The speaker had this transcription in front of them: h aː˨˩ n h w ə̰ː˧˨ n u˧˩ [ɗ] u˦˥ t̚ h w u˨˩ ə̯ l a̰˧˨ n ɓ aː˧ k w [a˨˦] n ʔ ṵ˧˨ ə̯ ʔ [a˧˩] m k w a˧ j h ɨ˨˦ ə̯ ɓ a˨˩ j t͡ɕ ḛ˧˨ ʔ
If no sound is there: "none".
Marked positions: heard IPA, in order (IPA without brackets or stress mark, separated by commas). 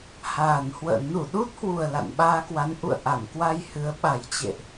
ɗ, a˨˦, a˧˩